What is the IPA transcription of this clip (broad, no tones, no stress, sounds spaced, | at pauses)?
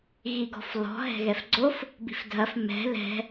ɣ i ɡ ɔ̤ f l ɔ̤ ɦ ɛ̤ ɣ ɛ f ɡ͡ǀ o f | b i̤ f dʱ ɐ f m ɛ̤ l ɛ̤